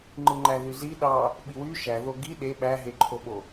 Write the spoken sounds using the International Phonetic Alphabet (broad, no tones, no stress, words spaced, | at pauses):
ŋ͡ǃɯŋ͡ǃæðyzi ɗɑ | ɓiwy ʃæ ðoɡi ɗe ɓæɦeǃʰoɓo